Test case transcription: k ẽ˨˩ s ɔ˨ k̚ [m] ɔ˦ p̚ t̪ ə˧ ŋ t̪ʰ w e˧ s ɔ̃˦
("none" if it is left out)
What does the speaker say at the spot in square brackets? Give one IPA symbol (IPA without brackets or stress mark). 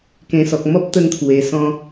m